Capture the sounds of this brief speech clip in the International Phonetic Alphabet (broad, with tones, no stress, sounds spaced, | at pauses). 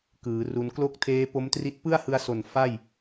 k ɯː˩˦ r u˧ n k l o˥˩ k̚ tʰ eː˦˥ p o˦˥ m t r i˦˥ t̚ p ɯ˥˩ a̯ h ɯ˧ a̯ s o˨˩ n f a˥˩ j